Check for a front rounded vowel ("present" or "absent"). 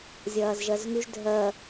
present